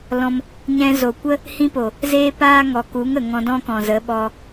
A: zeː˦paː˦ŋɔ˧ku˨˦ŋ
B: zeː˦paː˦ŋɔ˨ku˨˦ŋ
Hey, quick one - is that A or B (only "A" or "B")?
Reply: B